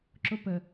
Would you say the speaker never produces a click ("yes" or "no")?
no